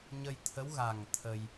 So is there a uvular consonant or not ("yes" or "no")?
no